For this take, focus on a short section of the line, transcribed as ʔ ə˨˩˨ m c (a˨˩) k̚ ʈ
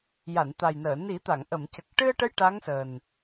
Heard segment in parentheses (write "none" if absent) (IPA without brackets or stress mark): ə˨˩